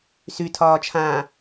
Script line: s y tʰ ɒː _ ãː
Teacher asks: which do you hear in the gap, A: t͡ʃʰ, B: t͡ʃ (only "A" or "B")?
A